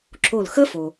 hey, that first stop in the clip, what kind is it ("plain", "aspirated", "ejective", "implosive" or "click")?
click